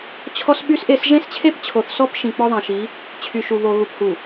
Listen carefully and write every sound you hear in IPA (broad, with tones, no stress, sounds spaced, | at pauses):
t͡ɕʰ ɔ˦ s ɓ y˦ s ʔ e˦˨ s ʒ ẽ˦ s t͡ɕʰ e˦ p t͡ɕʰ o˨ θ s ɔ˦ p ʃ ĩ˨ k͡p ɔ˦ ðˤ ẽ˨ ʃ i˨˦ | t͡ɕʰ y˨ ʃ u˨ β o˨ ɣ u˨ p h u˨